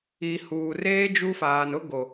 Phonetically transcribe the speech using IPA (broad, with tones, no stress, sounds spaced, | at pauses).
i˨ h uː˨ r eː˦ d͡ʒ u˦ f aː˨ n ʊ˦ ɡ o˨